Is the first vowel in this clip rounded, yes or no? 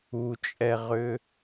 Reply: yes